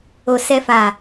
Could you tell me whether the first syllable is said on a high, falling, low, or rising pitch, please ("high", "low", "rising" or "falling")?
low